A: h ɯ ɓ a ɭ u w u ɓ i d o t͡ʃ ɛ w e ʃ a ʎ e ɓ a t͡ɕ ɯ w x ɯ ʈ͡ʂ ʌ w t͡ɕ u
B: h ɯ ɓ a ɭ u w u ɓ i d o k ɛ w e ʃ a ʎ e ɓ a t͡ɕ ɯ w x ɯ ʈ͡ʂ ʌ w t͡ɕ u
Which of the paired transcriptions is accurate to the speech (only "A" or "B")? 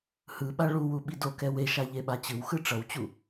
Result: B